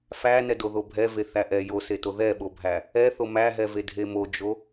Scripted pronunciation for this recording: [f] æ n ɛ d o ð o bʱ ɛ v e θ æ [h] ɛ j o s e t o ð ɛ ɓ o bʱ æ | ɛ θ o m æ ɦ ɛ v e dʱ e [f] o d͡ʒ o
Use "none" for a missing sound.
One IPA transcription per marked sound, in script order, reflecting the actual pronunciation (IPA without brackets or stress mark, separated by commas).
f, ʔ, m